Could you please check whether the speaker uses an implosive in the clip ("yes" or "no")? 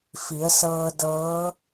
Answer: no